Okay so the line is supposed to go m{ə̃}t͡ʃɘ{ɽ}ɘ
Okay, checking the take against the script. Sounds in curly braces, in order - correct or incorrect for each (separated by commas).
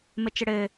incorrect, correct